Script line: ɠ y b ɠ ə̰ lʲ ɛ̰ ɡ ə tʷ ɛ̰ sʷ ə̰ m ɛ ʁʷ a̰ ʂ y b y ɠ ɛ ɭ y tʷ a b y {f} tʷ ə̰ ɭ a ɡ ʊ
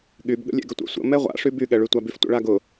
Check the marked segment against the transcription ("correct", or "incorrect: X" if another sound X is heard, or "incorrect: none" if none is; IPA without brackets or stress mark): correct